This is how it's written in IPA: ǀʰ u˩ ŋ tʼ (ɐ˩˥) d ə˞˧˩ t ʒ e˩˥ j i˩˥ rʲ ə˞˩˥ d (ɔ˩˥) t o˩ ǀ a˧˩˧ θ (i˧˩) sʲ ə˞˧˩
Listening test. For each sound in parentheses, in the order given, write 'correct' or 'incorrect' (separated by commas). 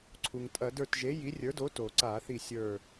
incorrect, incorrect, correct